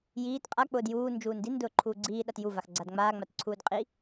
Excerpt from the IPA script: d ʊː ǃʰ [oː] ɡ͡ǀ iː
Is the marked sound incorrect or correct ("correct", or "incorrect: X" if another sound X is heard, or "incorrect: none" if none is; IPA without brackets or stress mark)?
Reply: incorrect: uː